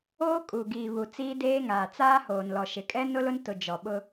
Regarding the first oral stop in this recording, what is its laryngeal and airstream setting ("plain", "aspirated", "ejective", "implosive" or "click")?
ejective